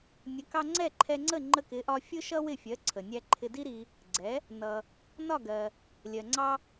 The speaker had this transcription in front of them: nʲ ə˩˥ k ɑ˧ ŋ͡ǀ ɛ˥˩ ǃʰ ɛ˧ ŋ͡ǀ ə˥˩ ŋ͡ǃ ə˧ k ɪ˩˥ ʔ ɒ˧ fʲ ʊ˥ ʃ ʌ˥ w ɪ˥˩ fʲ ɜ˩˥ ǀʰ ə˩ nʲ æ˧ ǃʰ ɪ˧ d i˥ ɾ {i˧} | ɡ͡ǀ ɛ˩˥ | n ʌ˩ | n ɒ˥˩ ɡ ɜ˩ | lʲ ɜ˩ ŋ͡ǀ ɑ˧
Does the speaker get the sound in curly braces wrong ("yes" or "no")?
no